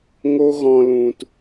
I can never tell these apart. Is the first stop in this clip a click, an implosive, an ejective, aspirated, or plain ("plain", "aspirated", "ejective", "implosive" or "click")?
plain